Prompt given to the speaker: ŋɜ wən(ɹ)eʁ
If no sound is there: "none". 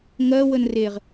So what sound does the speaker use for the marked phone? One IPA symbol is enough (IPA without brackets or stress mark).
r